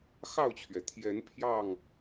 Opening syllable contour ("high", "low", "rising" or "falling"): falling